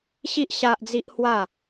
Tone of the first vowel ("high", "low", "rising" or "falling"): high